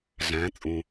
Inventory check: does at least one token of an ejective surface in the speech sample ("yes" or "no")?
yes